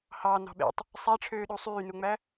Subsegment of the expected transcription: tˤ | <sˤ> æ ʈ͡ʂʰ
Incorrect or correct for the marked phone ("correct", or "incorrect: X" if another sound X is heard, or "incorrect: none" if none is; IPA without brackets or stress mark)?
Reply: correct